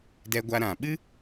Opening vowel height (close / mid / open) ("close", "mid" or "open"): mid